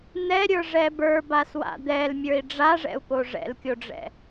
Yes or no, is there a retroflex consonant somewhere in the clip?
yes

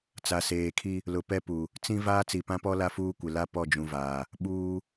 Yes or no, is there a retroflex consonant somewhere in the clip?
no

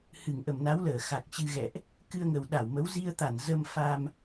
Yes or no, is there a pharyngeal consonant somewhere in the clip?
no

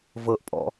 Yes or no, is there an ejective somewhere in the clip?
yes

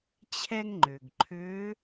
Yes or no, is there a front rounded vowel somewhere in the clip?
yes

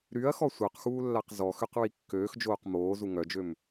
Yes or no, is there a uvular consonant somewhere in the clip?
yes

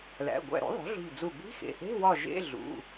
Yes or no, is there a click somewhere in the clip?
no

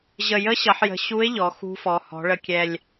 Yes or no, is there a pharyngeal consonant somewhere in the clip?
yes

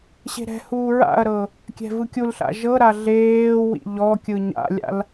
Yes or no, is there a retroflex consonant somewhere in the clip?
no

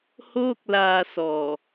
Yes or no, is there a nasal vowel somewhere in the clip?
no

